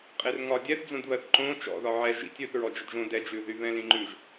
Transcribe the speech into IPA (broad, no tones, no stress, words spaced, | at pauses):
qʼerŋɒ dʲɛθd͡zõd βɜθǃõ t͡ʃɔ̰ðɒ ʕɛ ʒḭtʲ ʉθ ɹɔd͡ʒədʒõ dɛ d͡ʒʉðy βɛ̃lĩŋ͡ǃʉʒ